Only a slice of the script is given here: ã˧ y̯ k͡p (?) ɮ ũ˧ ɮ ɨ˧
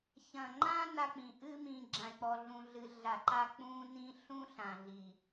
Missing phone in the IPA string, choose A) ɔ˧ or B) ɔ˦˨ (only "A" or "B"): A